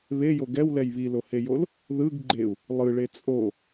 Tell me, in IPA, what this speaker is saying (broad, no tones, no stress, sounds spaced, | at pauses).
β e j o ɡ ɛ w l ɛ j β i l o h e j o l | ð ɯ ɡ ɡ͡ǃ e u̯ | lˠ ɯ ɭ e t͡sʼ o